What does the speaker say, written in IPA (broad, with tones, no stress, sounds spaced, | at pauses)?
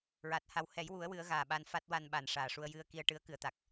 ɹ aː˨˩ t̚ h a˧ w h ɛ˨˩˦ j w u˨˩˦ ə̯ w ɨ˨˩˦ ə̯ ɣ aː˨˩ ɓ a˧ n f a˦˥ t̚ w a˧ n ɓ a˨˩ n ʂ aː˨˩ ʂ u˧ ə̯ j ɨ˧ ə̯ k i˧ ə̯ ʈ ɨ˧˥ ə̯ k ɨ˨˩˦ ə̯ t̪ a˨˩ k̚